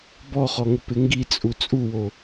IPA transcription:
bɔχɔŋʊ pɪŋɡit͡sʼu t͡sʼuwo

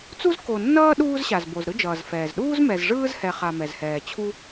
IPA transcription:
t͡su˥zko˨nːʌː˥ɗuː˦z ɕa˨zbo˨z ɾɯ˦d͡ʒʌː˩zfɛː˩zɗuː˥z mɛ˨zʐɯː˥zhɛ˨ χa˨mɛ˩zhɛː˩t͡ɕʰu˦

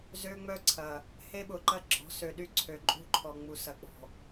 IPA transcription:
zø˦ŋ͡mœ˦ǀʰɐ˨ | he˦ɓʊ˨ǃɐ˦ ɡ͡ǁɔ̤˨˦sø˨ɗy˦˨ ǀʰø˨ǃʼṳ˦ǃʰɔ˨ ŋ͡mu˨sɐ˨ k͡pɔ̤˨

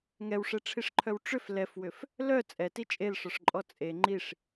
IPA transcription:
ŋɛwʂɛʈ͡ʂʰiʂǃʰœw ʈ͡ʂʏf lɛfwʏf | lœ t͡sʼɛti t͡ʃʼelʂɔʂǃʼɔ t͡sʼe ŋ͡ǃiʂ

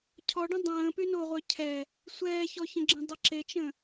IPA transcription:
cʰɔɖə̃ dˤə̃ː pynoʁʷœ cʰɛ | sʷɛːçɔçə̃ɡ͡ǁə̃ dˤəǁet͡ʃə̃

